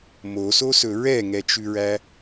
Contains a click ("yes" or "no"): no